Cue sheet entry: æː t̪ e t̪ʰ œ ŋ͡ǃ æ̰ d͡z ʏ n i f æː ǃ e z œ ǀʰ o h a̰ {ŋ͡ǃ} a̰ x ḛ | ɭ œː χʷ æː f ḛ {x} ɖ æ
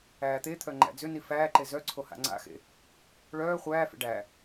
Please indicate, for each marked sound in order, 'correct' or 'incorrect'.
incorrect, incorrect

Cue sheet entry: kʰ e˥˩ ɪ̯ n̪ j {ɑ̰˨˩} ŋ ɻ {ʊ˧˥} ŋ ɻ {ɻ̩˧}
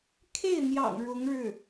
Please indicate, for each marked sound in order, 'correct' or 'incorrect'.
correct, correct, incorrect

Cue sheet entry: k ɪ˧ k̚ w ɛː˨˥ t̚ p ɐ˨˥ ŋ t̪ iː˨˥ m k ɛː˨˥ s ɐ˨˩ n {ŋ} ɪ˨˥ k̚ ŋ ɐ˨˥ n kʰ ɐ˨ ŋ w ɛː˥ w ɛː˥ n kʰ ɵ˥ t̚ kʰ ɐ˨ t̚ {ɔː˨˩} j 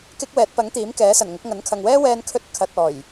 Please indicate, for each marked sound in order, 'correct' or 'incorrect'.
correct, correct

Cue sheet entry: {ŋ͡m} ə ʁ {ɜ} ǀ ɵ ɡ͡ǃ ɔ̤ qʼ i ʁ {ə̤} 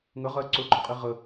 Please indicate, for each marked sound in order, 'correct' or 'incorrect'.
incorrect, correct, incorrect

